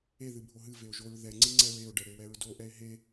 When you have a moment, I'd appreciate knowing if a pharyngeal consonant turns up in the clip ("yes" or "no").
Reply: no